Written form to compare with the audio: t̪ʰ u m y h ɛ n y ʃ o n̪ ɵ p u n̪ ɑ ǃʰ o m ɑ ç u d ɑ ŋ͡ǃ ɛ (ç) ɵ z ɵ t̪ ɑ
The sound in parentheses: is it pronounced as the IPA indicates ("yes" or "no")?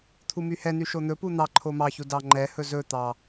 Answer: no